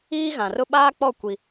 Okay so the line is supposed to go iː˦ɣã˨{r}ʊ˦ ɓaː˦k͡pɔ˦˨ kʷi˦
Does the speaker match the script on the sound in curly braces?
yes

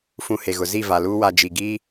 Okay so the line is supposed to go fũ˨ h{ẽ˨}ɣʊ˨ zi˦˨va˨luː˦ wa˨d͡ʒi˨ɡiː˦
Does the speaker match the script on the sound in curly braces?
no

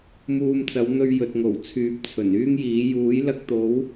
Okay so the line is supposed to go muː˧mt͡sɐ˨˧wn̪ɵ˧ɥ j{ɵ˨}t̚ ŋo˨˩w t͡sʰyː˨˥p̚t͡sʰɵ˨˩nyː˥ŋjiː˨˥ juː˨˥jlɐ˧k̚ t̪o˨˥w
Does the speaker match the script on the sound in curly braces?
yes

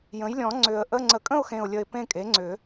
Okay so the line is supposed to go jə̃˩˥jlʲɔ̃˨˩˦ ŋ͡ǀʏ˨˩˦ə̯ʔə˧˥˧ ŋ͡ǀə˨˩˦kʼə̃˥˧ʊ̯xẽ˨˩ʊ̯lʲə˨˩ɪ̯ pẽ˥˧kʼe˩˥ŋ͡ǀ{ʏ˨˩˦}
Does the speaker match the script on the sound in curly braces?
yes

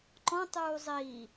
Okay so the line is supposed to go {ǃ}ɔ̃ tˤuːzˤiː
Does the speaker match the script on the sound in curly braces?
yes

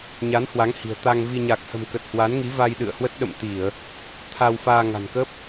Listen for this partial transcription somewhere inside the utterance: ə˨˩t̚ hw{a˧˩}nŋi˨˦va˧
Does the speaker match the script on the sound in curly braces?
no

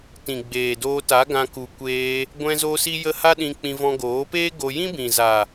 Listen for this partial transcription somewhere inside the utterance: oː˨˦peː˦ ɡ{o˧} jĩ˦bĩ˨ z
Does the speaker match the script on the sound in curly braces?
yes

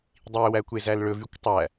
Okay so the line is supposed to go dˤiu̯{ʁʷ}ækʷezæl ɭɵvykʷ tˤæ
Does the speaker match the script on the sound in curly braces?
no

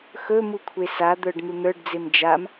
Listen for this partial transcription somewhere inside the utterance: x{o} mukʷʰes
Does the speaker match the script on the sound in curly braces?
no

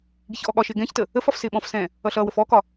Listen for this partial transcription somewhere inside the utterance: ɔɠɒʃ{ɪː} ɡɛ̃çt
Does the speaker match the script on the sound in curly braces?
yes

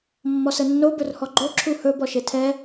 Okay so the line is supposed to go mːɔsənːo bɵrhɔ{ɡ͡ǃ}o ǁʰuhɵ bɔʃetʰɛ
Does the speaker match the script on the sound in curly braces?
yes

